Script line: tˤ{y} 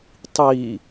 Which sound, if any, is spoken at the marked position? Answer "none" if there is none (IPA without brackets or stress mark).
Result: i